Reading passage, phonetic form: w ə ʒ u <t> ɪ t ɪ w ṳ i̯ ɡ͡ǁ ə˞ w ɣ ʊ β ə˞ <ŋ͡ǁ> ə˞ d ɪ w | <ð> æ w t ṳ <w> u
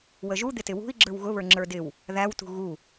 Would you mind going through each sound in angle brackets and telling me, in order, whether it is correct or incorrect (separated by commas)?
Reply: incorrect, correct, correct, incorrect